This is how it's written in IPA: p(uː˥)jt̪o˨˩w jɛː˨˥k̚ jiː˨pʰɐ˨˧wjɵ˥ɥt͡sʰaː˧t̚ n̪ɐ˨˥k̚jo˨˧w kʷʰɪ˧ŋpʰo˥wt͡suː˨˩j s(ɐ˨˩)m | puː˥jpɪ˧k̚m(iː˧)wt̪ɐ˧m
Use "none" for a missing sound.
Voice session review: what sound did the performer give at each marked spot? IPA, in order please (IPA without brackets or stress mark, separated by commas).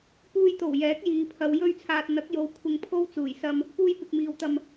uː˧, ɐ˧, iː˨